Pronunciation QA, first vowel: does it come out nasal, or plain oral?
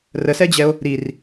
oral